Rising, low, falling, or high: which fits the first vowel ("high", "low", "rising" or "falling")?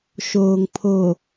low